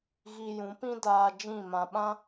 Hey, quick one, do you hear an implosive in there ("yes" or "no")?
yes